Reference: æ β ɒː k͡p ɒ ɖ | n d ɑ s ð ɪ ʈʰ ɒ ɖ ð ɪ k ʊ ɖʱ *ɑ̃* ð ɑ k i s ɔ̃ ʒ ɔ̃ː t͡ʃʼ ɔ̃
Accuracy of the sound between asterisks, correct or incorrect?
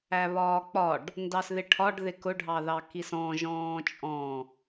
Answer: incorrect: ɑ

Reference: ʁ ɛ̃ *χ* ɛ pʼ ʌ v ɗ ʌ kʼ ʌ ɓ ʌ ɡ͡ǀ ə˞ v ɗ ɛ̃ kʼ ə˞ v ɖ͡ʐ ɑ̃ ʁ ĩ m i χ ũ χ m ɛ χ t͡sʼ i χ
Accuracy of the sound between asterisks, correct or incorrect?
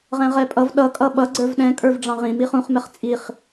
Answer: incorrect: ʁ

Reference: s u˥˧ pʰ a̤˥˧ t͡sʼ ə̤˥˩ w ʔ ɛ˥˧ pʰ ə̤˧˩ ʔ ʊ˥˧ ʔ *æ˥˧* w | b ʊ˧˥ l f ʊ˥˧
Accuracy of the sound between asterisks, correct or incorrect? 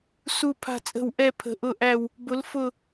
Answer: correct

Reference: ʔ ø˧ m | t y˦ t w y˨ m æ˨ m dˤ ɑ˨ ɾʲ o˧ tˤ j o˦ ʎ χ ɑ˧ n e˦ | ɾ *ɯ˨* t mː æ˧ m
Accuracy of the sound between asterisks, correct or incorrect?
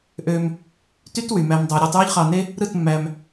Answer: incorrect: ɯ˦˨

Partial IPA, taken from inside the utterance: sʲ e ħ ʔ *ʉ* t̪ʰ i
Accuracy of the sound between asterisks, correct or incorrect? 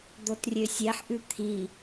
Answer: correct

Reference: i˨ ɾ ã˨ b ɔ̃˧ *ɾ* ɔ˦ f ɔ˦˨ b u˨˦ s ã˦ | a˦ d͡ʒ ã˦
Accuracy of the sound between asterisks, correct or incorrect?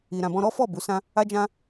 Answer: correct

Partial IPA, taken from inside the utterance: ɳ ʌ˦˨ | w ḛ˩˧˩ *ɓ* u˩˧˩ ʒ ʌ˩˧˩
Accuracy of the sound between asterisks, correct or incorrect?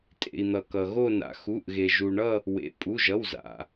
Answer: incorrect: pʼ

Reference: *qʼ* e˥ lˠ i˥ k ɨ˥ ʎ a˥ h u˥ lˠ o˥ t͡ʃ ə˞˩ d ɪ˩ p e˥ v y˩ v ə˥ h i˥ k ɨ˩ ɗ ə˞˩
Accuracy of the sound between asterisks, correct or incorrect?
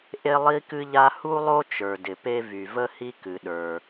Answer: incorrect: ʔ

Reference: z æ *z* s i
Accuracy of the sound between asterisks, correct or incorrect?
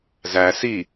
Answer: incorrect: none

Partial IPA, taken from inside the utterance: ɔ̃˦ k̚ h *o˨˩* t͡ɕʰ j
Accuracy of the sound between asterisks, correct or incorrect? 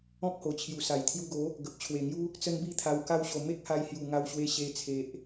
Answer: correct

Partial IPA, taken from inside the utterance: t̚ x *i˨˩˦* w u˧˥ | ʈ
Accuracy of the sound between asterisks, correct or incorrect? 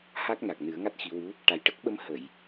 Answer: correct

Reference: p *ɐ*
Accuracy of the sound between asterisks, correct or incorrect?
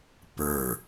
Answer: incorrect: ə˞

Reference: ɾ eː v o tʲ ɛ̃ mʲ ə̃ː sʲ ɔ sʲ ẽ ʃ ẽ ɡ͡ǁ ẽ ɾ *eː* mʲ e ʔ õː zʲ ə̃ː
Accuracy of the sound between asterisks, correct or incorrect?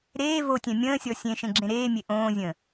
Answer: correct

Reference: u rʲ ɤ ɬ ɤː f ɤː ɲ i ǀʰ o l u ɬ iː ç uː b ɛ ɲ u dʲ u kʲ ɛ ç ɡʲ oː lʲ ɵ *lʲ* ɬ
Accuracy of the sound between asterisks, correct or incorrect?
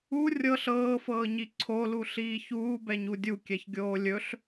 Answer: incorrect: none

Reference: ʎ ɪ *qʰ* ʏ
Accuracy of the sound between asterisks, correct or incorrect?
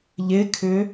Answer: incorrect: kʰ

